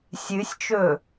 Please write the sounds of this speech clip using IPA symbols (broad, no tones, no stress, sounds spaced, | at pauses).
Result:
sʲ ɨ sʲ t͡ʃ ɵ